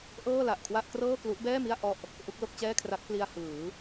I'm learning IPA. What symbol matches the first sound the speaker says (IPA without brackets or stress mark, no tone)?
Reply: ʔ